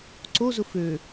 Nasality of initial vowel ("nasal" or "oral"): oral